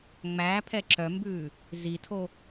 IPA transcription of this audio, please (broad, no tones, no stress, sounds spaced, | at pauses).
ŋ͡m æː pʰ ɛ ǁ œ m b ʉː | z i tʰ o